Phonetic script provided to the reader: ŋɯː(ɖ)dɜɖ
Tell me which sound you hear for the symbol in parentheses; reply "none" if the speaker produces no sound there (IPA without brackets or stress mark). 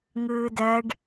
none